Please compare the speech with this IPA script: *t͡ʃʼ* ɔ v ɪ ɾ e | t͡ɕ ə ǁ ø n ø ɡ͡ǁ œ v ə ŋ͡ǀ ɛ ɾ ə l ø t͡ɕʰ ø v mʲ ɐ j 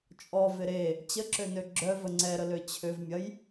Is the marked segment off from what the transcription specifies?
no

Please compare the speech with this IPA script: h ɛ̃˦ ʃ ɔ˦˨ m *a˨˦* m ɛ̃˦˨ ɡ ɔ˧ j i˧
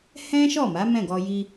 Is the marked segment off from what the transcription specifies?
no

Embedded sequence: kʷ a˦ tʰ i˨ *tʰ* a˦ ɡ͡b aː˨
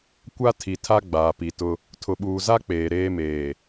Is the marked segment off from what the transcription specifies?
no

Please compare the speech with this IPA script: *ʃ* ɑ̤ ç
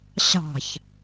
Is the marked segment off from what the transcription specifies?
yes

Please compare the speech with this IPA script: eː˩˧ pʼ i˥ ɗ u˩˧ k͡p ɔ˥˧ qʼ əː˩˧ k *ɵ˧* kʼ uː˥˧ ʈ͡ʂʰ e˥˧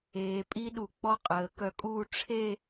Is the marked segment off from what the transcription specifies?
yes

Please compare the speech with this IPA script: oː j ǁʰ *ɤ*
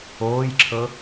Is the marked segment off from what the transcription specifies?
no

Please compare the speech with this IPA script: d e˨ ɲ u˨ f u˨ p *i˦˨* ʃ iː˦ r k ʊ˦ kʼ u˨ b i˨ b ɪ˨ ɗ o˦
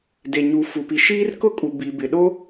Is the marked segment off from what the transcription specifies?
yes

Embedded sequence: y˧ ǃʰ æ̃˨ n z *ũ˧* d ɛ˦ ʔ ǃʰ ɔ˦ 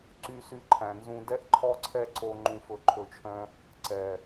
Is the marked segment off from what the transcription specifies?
no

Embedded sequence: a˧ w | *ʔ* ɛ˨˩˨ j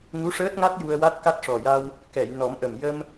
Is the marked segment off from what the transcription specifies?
yes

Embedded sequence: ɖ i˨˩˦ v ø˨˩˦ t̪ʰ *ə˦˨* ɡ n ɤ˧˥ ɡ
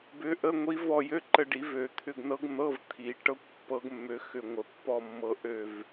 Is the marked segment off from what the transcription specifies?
yes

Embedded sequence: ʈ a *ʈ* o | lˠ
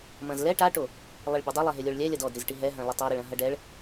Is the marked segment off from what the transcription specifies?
no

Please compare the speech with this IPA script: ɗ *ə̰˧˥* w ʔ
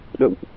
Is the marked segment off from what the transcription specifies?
yes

